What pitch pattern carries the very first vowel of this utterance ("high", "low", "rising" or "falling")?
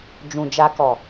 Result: low